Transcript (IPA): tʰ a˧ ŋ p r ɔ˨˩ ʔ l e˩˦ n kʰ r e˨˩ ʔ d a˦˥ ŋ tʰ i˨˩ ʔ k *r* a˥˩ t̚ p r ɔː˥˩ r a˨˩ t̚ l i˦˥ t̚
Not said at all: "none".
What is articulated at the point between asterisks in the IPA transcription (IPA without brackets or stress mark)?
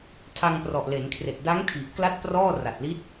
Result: l